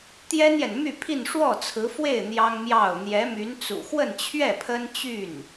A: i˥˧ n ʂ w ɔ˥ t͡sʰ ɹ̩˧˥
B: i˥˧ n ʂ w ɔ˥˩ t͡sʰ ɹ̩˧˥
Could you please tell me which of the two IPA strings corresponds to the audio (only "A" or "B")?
B